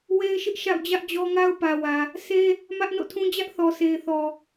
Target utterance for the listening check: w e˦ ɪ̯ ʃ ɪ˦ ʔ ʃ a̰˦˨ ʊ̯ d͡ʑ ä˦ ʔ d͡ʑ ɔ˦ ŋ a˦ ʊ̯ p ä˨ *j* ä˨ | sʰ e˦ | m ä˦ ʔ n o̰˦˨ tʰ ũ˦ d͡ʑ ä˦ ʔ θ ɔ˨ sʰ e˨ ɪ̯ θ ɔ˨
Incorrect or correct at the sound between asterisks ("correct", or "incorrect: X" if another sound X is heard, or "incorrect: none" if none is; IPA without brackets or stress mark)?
incorrect: w